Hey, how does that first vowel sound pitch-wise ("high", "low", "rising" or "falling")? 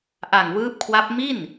low